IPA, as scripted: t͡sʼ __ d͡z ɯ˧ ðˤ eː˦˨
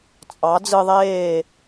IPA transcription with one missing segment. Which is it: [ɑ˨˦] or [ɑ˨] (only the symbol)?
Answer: ɑ˨˦